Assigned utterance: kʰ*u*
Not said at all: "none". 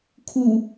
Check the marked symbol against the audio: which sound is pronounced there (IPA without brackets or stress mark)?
u